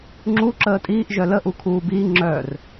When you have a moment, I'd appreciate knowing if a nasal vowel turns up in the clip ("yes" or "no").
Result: no